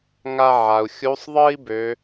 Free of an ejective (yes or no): yes